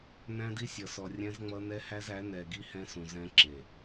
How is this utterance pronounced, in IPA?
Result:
næ̃˦di˦sʲʌ˨sɔ˨ rʲɛ̃˦zŋ͡mʌ˦ nɛ˦hæ˦zæ˨˦ nɛ˨ɡi˦ hɛ̃˦sũ˨ zɛ̃˦ǁe˨

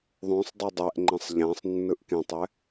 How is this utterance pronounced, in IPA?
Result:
ðˤõsˤdˤa dˤɛʔŋ͡ǃɛ̃sˤ ʎãsˤnːɯʔ kẽtˤɛ

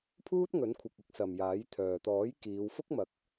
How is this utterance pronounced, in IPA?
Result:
pʰuː˥t̚ŋɵ˨˥nkʷʰɪ˨k̚ ɪ˥k̚sɐ˨mjaː˨˥jt̪ʰœː˨ t̪ɔː˨˥jkiː˨˧w fʊ˥k̚mɐ˨˥k̚

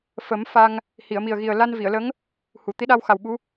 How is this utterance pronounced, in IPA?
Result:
fə˨˩˦m fa˧ŋ | hi˨˩˨ə̯mi˨˩ə̯ɣi˨˩ə̯ la˧nvi˨˩˨ə̯lə˧˥ŋ | hu˨˩˨ t̪i˧˥ɗa˧wxa˨˩wɓu˧˥

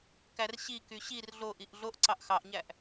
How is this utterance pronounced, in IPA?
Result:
kærɕiky ɕir ɮoʔiʔ ɮoʔ ǀɑʔxɑʔɲæʔ

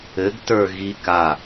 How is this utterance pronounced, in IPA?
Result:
ɘɡtə˞ɣi ka

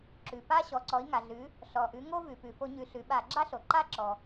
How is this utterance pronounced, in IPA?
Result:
ǁʉ˩pa˦ ɕɔ˩˧ǀɔ˩˧i̯ŋa˩ɮʉ˩˧ | ɬɔ˩ʔʉ˩˧ ŋo˦vʉ˩pʉ˩ fo˧˩˧ɲʉ˩˧ ɬʉ˩˧ɓa˧˩˧ ɡ͡ǁa˦ɬo˩ǃa˦ǁɔ˩

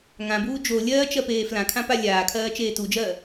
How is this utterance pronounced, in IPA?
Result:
ŋãbuː d͡ʒo lʲɜːt͡ʃɜpeː flãkʰãpa lʲaːkʰɜːt͡ʃeː tud͡ʒɜː

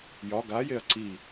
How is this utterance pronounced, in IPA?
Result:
jɒ ɡajeɐ̯ ǀi

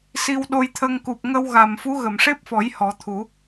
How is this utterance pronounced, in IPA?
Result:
si˧wɗo˧jt̪ʰə˧ŋ ku˨˩p̚ŋə˧wɣa˨˩mfu˧˥ ɣə˨˩˨mʂe˦˥p̚fɔ˨˩˦j hɔ˨˩˦t̪ʰu˨˩˦

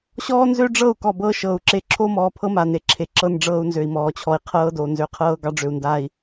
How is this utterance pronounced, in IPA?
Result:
ɕɔː˦nzø˦ ɖ͡ʐɤ˦˨u̯ kɔ˨bɤː˦ʃɤː˨u̯ǁe˦ ǁʰo˦mɔː˨pʰɤ˦ ma˨ne˨ǁʰe˨ ǁɤ˦n ɖ͡ʐɤː˦u̯nzø˨i̯mɔː˨t͡ɕʰɔ˨i̯ qʰɤː˦do˨ nzø˨qʰɤː˦ ɡɑ˦ɖ͡ʐø˨u̯ndaː˨i̯

